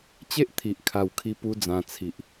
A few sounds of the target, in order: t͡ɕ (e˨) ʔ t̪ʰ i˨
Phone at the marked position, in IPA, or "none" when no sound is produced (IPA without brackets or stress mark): e˦